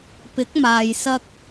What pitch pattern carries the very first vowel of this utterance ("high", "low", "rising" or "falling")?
rising